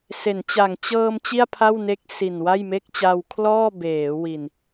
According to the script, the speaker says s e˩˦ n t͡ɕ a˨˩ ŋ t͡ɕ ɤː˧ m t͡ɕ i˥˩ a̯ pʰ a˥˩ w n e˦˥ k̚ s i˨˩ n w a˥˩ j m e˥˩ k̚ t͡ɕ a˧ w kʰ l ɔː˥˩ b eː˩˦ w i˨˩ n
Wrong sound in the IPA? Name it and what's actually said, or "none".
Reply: none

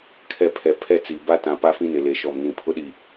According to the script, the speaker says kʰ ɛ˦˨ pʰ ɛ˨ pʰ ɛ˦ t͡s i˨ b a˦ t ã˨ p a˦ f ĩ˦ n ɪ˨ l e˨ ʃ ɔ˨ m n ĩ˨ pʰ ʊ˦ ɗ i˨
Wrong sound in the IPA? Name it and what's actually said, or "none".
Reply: none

